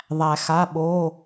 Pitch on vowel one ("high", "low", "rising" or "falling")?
low